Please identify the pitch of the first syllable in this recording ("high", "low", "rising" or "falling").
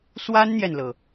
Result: high